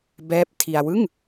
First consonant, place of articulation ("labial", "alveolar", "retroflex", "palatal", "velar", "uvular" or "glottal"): labial